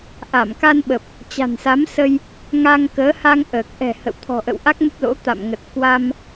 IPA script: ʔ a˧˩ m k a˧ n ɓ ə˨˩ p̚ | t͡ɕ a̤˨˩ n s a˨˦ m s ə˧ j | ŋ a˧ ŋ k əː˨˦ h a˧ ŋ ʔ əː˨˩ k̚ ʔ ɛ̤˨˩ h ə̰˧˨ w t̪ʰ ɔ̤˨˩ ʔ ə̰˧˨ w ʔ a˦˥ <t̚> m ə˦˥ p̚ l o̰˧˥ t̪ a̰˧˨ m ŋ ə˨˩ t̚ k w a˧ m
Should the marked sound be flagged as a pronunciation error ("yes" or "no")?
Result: yes